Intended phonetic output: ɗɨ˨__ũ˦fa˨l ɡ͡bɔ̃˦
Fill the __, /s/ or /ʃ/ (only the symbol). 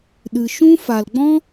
ʃ